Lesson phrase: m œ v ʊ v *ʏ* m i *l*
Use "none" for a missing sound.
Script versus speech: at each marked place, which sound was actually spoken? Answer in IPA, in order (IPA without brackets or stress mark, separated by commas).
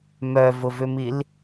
ʏ, l